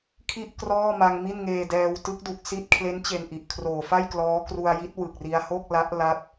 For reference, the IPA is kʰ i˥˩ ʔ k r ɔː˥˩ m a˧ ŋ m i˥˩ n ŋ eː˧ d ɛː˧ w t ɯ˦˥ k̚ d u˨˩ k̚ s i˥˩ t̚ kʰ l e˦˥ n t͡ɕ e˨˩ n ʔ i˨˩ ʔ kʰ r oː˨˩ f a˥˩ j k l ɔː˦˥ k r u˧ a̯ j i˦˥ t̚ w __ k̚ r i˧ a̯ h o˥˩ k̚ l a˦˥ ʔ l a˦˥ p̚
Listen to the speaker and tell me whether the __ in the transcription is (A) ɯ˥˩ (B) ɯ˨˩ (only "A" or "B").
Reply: B